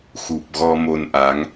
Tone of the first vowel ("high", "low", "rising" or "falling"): low